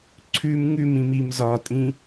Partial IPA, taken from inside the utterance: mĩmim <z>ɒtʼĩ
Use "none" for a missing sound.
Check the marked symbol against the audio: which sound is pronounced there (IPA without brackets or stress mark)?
z